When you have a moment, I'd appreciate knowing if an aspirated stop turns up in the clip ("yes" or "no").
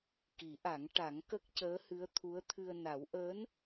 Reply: yes